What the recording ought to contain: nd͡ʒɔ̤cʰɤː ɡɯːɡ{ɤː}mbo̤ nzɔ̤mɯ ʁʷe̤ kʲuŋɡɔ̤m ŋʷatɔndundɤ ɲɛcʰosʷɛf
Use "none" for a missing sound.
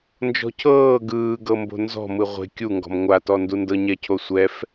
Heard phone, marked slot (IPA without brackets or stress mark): ɤ